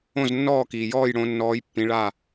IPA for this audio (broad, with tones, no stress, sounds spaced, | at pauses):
õ˥˩ z nː ɔː˥˩ k iː˩ j ɔː˥˩ j ɽ õ˨˦ nː ɔː˨˦ j pː ĩ˨˦ ɭ a˥˩